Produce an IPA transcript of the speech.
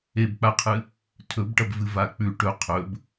e b k͡p a qʰ ɨ | tʰ ɵ b ʈ ɐ b v ɨ v a k͡p ʉ ʈ ɵ qʰ ɵ b

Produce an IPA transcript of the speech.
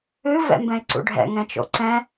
ɨ v ɛ̰ m b ɛ̃ ɪ̯ ǀ ṵ ɖʱ ɛ̰ ŋ ɛ̃ t͡ʃ o̰ ǀ ɛ̃

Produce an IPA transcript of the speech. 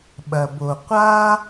ɓ ɐ˩ b o˩ qʷ a˥

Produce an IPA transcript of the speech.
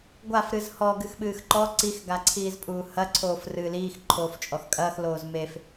ɡʷ a f ɾ ɨ z h ɔ ɡ ɨ x ɓ ɨː x ǃ ɔ ǀ i x ɡ a ǀʰ iː z pʼ uː h ɐ ǀʰ oː f r ɨː l iː x ǃʰ oː f t͡ʃʼ ɔ x kʼ ɐː x l oː z m e f

